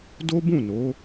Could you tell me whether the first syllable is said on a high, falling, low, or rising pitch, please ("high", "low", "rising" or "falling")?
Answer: high